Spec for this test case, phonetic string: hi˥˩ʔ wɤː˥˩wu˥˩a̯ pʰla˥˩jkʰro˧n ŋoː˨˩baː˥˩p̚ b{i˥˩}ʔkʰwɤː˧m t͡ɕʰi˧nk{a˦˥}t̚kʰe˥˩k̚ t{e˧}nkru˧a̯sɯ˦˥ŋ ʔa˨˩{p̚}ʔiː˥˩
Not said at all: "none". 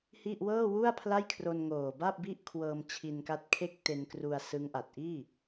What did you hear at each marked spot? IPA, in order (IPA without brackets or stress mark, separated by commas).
i˥˩, a˦˥, e˧, t̚